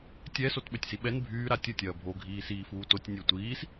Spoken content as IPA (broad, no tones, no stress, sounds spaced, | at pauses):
tʲ ɛ s o t ɓ ø tʲ s i ɓ ɛ n bʱ yː ɾ a tʲ ə tʲ ɐː bʱ o ɡʱ iː s iː f uː t o tʲ nʲ ø tʷ iː s